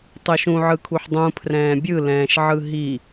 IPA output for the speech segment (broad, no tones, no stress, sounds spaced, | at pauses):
tˤ ɯ ʃ ũ ʕ ɯ kʰ u ħ dˤ ũ pʰ r ɛ̃ː bʲ ɯ l ɛ̃ː ʃ ʕ ɯ ɦ i